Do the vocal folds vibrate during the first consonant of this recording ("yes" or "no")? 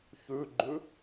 no